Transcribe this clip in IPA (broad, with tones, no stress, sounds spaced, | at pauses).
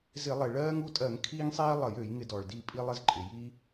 z ɪ˧˩˧ lˠ e˩ ɭ ɜː˦ ŋ u˦˨ tʼ ɜ˧˩˧ ŋ kʰ iː˦ ŋ sˤ iː˦ lˠ ə˧˩˧ j ø˧˩˧ j ŋ ɪ˧˩˧ d ɔ˩ ɭ d i˦˨ pʼ i˦ lˠ ɪ˦ z ǃʼ ɪ˩ j i˦